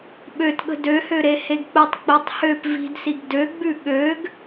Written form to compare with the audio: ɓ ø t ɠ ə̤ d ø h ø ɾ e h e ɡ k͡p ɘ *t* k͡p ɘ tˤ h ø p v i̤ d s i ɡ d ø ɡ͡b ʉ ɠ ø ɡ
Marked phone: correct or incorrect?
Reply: incorrect